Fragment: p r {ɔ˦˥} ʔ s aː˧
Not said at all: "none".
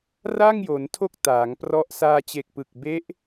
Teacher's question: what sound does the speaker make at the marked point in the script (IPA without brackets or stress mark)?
ɔ˦˥